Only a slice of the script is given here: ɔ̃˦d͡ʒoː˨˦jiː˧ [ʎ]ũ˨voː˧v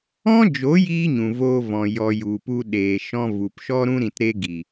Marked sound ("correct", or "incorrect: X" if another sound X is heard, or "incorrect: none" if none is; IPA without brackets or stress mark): incorrect: ɲ